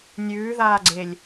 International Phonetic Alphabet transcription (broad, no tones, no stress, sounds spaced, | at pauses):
nʲ ʉː ð aː ɡ͡ǀ e lʲ